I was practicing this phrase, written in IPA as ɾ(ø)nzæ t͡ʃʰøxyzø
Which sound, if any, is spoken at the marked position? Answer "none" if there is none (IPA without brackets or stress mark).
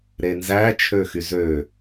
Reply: e